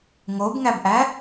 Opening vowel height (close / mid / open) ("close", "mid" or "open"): mid